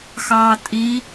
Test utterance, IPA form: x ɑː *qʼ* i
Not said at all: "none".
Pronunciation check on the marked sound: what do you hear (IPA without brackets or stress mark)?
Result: tʼ